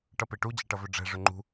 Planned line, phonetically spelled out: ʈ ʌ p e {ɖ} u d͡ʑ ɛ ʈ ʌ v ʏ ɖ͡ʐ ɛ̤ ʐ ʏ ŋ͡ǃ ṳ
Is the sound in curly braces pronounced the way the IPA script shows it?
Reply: no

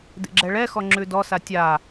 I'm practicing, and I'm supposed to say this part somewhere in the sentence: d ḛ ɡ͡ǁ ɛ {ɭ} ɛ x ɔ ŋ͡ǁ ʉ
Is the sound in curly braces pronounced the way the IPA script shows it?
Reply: yes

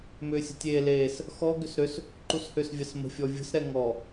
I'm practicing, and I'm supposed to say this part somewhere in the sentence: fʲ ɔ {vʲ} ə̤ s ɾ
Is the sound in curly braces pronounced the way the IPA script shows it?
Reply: yes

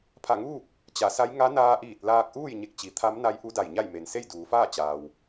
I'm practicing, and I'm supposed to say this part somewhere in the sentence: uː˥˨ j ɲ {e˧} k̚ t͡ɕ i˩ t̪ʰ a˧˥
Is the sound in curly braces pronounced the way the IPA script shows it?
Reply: no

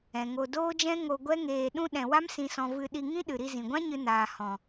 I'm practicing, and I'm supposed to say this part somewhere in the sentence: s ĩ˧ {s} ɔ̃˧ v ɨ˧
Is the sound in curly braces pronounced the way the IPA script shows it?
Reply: yes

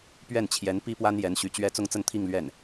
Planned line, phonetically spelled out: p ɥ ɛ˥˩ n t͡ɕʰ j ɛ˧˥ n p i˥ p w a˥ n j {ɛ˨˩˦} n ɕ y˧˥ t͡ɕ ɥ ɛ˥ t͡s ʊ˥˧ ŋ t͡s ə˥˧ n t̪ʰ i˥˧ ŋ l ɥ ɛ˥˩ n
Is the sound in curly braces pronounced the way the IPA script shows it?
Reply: no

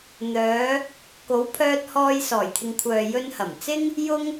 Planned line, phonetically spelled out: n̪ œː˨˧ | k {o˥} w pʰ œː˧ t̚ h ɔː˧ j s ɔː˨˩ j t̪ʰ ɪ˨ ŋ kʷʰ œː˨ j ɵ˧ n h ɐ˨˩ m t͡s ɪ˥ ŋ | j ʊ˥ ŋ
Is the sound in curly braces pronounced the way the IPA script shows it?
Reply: no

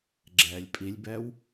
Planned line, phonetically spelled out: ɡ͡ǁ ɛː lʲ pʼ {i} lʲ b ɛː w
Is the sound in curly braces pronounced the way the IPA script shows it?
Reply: yes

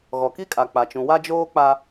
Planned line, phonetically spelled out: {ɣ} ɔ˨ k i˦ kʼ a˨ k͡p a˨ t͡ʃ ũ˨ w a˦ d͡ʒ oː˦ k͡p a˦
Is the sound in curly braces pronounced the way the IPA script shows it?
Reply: yes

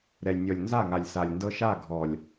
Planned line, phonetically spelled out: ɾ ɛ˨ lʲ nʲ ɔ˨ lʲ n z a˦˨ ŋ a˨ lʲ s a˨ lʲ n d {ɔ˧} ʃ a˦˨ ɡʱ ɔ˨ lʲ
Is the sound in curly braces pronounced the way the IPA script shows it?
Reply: no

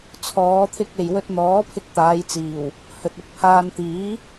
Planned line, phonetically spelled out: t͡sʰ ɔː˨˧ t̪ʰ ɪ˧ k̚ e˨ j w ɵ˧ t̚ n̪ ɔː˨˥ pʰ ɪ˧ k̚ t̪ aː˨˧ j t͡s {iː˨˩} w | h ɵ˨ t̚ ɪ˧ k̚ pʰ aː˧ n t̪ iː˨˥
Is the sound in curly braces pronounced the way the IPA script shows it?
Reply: yes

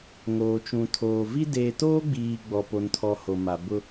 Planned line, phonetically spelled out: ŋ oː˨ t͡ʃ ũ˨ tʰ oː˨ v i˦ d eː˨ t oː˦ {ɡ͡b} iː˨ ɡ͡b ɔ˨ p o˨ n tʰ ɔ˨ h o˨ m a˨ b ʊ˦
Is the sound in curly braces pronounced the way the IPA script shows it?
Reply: yes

